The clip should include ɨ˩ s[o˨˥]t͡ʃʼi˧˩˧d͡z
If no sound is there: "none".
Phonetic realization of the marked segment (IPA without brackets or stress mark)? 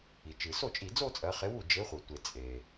o˥˩